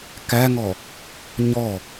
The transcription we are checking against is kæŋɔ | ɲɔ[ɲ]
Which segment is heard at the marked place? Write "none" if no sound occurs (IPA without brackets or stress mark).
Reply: none